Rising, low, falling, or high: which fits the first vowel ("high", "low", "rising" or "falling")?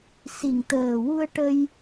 low